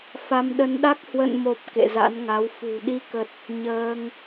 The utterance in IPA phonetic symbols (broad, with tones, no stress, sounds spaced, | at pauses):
f a˧ m ɗ ə˧ n ɗ a˦˥ k̚ h w ə̰˧˨ n m o˨˩ p̚ k ḛ˧˨ z a̰˧˥ n ŋ a˨˦ w f ṳ˨˩ ɗ i˧ k ə˨˩ t̚ | ɲ əː˧ ŋ